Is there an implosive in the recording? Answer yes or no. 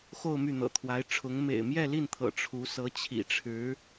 no